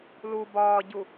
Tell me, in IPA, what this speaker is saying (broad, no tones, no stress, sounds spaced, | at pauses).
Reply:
l u b ɒː ɟ u